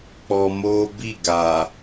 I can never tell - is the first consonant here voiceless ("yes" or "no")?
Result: yes